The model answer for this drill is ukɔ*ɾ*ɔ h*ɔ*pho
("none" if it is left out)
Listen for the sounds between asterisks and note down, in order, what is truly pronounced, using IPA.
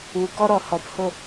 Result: ɾ, ɔ

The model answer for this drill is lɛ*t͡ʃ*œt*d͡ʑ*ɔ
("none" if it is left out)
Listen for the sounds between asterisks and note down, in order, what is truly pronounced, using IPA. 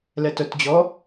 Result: t, d͡ʑ

